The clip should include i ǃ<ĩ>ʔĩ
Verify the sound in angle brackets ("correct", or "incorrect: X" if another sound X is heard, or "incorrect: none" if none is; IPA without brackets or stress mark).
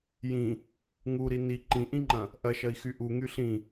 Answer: correct